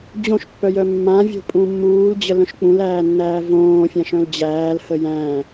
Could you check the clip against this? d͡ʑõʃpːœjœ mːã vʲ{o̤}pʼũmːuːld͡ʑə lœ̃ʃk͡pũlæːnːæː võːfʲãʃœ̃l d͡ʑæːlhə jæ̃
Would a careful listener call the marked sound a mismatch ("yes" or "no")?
no